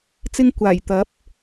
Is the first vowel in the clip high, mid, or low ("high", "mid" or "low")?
high